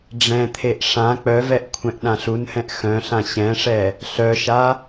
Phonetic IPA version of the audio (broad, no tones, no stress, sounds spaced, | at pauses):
ɖ͡ʐ ɛ̃ t̪ʰ e ʔ ʂ ã k͡p œ v ɛ ʔ kʷʰ ɛ̃ ʔ ɗ ã ɬ u n h ɛ̃ ʔ x œ̃ ɬ ã ɕ ɛ̃ ʂ ɛ | ɬ œ ʃ a